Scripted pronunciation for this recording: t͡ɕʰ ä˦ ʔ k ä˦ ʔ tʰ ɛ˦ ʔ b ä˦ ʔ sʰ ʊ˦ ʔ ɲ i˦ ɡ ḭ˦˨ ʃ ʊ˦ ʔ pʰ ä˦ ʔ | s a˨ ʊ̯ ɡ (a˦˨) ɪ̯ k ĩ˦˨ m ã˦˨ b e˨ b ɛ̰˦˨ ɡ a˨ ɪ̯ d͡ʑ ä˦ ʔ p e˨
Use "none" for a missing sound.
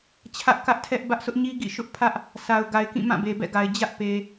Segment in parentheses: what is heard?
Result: a˨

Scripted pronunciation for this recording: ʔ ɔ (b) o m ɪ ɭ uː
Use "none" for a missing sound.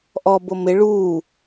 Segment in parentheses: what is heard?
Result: b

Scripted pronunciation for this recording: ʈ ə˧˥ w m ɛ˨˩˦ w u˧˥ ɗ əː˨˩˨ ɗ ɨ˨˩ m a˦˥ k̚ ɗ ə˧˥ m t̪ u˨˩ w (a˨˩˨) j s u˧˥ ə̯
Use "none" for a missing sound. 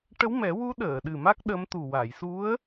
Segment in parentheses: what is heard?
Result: a˨˩˨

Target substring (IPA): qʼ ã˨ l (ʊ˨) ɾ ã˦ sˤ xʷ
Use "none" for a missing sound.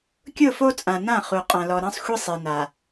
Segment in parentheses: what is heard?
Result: ɔ˨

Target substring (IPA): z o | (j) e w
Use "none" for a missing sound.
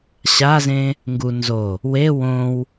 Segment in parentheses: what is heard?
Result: w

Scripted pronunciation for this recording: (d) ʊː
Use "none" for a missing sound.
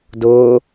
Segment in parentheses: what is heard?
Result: d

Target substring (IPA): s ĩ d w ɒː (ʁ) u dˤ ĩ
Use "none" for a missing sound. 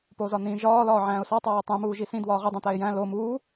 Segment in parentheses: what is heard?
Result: ʁ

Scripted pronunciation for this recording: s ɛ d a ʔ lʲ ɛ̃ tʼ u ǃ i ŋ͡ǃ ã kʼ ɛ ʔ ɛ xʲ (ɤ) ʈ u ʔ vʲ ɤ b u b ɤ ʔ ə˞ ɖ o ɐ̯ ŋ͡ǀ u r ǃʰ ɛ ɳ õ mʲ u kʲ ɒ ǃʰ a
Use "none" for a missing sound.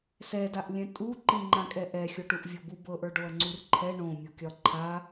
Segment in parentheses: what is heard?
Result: o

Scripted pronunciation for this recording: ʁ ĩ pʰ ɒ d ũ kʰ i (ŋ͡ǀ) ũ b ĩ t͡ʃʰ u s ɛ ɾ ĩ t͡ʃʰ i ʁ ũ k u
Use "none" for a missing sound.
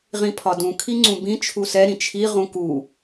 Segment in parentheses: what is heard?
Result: ŋ͡ǀ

